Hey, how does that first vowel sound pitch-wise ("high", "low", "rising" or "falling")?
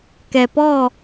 low